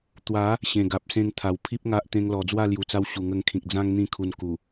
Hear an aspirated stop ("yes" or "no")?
yes